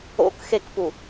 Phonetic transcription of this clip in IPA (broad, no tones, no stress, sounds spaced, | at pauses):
o̰ k x e k p u